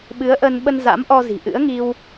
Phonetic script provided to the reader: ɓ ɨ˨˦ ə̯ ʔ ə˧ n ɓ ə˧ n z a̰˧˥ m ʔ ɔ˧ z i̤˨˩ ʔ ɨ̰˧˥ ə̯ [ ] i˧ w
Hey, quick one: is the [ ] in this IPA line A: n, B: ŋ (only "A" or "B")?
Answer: B